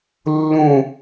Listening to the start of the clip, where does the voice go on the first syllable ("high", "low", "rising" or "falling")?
falling